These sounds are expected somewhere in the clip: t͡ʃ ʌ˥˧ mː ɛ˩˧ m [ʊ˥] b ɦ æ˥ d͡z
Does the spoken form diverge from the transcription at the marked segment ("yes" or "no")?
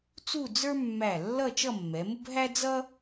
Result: no